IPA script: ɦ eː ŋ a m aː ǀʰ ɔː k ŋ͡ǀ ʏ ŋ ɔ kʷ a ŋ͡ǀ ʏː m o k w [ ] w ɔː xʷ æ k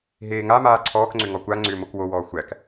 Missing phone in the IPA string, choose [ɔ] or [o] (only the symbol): o